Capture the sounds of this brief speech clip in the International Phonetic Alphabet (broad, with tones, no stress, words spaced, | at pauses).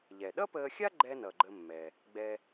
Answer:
ʎɛ˩ɗʌ˥pəː˧xʲa˥ ɡ͡ǃɛ˥nʌ˩ɡ͡ǃə˧mːɛ˩ | ɡ͡bɛ˧